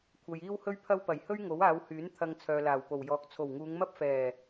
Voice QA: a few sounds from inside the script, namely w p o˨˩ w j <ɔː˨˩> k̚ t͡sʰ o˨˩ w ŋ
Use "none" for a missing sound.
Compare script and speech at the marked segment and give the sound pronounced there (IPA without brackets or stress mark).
ɔː˨